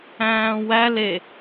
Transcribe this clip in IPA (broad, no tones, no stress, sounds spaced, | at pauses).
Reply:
æ̃ː w æ l e